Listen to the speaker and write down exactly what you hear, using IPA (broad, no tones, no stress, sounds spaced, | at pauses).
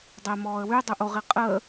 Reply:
dˤ ɛ m ɔː ə̯ w y dˤ u ʔ o ʁ i qʼ əː